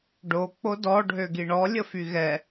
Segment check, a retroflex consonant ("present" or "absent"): present